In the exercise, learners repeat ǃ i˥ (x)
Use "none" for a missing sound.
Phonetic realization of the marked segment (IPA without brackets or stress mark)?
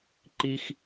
x